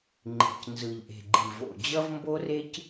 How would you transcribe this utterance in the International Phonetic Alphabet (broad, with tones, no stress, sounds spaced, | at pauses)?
ŋ͡ǃ i̤˨ c n z ɯ˨ ʎ ʔ e̤˨ ɡ͡ǃ i˨ v o̰˨ d͡ʑ ʌ˦ v m b o˦ r e˦ c